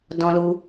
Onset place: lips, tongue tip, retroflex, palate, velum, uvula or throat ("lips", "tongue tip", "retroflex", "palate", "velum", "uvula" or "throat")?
tongue tip